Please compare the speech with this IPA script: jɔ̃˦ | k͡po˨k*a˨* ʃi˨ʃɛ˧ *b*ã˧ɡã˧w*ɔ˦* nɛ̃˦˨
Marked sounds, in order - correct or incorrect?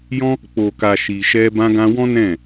correct, correct, incorrect: ɔ̃˦

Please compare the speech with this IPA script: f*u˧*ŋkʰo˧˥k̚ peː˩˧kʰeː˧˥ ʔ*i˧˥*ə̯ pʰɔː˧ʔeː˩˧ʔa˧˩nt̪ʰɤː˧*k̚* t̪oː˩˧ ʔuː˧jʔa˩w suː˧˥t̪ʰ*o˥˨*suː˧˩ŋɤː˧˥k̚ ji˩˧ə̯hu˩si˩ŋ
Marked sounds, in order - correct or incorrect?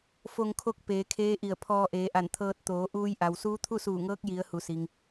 incorrect: o˧, incorrect: i˧˩, incorrect: t̚, incorrect: u˥˨

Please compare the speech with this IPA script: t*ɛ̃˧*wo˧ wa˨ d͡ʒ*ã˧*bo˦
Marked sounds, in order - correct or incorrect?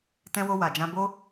correct, correct

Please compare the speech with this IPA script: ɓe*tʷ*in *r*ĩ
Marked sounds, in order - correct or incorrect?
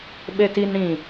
incorrect: t, incorrect: ɽ

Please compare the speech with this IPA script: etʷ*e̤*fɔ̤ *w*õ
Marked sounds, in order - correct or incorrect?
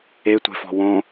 correct, correct

